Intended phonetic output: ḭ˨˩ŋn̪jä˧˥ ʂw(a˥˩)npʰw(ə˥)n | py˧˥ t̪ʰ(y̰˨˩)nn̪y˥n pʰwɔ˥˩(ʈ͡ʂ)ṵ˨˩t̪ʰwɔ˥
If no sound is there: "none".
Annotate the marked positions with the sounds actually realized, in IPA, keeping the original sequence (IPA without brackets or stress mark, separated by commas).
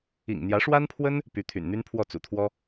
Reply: a˥, ə˥, y̰˨˩, t͡s